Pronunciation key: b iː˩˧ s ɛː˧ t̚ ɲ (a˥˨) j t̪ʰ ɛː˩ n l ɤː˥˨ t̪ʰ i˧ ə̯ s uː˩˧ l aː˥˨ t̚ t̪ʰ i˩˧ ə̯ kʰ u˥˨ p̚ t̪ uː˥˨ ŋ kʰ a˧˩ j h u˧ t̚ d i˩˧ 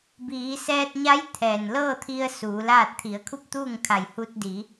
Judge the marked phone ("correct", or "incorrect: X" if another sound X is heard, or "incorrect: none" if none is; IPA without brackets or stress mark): incorrect: a˧˥